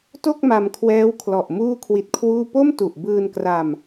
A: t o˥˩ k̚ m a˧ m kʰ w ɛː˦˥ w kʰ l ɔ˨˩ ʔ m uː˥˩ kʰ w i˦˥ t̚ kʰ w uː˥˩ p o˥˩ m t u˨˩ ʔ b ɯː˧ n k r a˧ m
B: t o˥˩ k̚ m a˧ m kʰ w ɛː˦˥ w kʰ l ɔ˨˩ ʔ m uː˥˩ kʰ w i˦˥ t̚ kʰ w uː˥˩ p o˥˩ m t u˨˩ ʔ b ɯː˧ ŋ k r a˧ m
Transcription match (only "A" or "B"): A